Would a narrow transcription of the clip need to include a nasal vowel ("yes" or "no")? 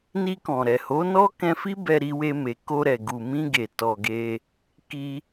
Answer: yes